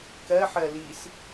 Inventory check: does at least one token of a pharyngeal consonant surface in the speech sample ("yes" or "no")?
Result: yes